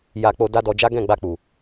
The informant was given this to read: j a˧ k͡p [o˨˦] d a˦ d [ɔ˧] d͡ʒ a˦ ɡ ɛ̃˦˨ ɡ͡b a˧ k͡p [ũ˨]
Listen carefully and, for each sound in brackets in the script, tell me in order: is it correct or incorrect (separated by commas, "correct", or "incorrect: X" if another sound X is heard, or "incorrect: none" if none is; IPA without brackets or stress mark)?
incorrect: o˧, correct, incorrect: u˨